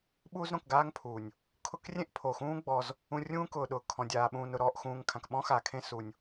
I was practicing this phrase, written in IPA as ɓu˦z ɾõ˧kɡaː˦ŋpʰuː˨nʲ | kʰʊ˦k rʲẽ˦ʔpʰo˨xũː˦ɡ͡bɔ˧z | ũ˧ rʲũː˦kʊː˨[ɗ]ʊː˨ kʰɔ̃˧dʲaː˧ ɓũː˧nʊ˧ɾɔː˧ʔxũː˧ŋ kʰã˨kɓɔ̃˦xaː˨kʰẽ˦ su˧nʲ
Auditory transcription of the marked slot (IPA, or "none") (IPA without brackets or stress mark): ɗ